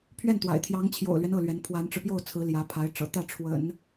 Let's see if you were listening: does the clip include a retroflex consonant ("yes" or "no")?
yes